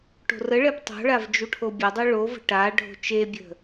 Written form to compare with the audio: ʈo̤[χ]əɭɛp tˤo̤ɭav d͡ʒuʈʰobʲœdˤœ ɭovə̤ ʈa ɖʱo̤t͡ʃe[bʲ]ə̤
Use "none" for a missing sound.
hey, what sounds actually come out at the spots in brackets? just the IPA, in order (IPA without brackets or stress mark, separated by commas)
r, bʲ